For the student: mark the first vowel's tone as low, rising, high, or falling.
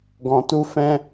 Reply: low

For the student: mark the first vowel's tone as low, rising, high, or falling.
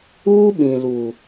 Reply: high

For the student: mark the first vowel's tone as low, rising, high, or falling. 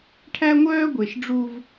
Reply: high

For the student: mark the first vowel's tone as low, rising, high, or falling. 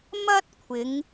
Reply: high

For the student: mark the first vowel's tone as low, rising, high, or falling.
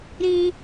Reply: high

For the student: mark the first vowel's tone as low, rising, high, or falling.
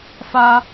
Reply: high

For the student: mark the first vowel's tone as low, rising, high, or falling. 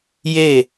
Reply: falling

